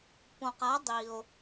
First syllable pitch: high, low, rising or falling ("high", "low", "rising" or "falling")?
low